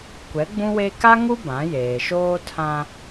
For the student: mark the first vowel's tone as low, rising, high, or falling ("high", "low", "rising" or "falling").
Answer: rising